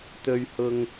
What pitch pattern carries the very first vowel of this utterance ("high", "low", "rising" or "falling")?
low